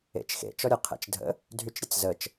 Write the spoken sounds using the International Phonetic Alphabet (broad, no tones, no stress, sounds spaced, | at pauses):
ḛ t͡ʃ x ḛ t͡ʃ ɔ ɾʲ ə qʰ ḛ t͡ʃ dʱ ə̰ | dʱ y t͡ʃ ɾʲ ə t͡s z ə t͡ʃ